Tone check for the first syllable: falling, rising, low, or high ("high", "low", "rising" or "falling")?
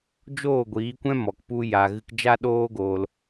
falling